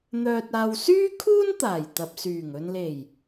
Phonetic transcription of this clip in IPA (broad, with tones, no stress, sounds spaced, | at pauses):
n̪ œː˨ t̚ aː˨ w s yː˥ kʰ uː˥ n t̪ aː˨˩ j t̪ ɐ˨ p̚ s yː˨˩ ŋ ɵ˨ n l e˨˩ j